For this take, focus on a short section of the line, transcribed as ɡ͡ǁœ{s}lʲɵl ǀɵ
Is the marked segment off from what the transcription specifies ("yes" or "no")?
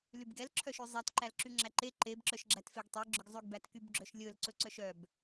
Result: yes